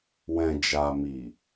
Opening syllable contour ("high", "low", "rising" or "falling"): low